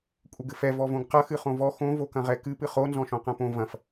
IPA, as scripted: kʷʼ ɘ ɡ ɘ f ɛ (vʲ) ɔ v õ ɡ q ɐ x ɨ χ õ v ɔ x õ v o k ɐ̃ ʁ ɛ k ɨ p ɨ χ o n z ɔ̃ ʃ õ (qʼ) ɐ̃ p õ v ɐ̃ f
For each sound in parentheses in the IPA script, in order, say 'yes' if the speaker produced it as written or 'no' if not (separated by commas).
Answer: no, no